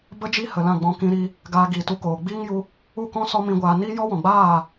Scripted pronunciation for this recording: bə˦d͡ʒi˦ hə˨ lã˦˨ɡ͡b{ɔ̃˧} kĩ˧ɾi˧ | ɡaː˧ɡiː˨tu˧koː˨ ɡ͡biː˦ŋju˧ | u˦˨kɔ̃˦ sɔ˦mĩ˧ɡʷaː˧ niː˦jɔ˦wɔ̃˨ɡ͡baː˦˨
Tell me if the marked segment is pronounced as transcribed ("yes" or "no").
yes